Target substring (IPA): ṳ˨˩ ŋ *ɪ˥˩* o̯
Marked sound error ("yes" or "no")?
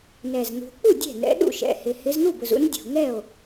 yes